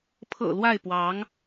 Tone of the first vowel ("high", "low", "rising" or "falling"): low